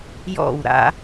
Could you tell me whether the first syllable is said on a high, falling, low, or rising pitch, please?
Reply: falling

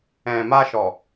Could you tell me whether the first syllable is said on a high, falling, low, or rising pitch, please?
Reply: low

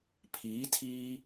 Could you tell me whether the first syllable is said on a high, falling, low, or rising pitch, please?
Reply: rising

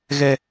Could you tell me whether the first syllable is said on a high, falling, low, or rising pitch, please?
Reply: high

